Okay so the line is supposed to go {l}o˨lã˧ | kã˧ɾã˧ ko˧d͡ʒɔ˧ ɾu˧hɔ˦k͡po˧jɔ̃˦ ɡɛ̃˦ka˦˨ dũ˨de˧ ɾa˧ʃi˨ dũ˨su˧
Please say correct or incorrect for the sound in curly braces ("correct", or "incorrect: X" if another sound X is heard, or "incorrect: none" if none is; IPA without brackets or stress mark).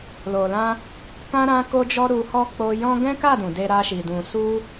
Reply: correct